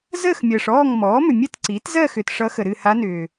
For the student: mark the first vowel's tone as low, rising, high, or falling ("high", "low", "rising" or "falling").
falling